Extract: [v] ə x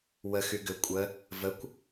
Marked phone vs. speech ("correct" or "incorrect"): incorrect